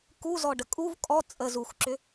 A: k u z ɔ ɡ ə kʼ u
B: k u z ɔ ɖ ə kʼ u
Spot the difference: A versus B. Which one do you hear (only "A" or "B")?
B